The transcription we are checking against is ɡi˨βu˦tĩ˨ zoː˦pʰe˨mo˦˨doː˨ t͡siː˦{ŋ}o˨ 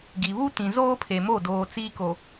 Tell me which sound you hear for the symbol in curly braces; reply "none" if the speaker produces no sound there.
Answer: k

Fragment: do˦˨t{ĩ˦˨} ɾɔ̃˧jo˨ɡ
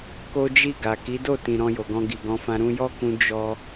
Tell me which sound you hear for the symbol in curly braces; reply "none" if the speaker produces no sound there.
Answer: ĩ˨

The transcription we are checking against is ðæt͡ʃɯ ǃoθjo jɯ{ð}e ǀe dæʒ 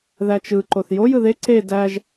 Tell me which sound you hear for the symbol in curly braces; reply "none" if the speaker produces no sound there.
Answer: ð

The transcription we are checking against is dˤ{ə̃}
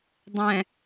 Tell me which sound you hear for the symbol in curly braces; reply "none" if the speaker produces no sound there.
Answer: ɛ̃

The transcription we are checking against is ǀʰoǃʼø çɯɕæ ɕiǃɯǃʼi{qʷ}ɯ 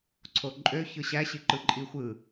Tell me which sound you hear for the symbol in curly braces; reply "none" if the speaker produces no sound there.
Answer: xʷ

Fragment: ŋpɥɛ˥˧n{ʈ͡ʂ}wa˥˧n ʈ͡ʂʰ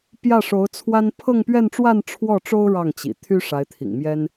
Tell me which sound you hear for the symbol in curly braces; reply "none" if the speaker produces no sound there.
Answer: ʈ͡ʂ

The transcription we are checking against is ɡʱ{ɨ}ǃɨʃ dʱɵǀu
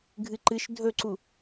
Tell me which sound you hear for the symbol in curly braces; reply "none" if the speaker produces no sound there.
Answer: ɨ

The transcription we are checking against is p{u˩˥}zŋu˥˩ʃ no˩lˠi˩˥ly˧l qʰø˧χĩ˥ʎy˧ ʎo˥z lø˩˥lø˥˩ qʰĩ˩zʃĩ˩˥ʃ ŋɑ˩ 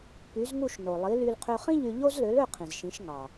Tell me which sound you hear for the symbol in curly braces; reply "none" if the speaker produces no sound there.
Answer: y˩˥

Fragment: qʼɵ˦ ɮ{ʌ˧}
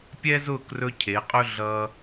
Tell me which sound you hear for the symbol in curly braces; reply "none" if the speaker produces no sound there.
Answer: ʌ˧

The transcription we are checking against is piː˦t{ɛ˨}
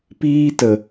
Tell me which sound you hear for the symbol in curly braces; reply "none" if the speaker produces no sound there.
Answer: ə˨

